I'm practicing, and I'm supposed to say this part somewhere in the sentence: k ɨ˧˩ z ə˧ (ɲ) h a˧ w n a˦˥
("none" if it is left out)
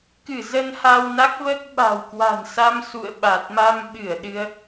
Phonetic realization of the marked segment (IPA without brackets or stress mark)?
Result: n